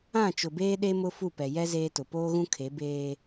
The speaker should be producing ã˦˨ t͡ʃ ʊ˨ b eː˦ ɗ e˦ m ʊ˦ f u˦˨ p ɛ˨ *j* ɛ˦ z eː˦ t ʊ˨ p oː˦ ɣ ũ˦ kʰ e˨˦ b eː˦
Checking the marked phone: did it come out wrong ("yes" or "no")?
no